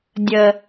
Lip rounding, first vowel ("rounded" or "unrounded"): unrounded